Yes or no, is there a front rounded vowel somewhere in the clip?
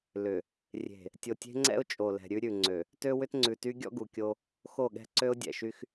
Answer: yes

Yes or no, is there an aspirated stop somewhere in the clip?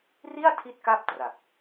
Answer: yes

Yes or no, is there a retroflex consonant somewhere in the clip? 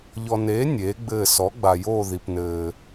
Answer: no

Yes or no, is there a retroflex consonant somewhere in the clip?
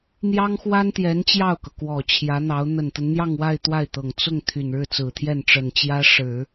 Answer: yes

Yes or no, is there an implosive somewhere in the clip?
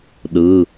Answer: yes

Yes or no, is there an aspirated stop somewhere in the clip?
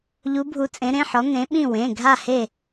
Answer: no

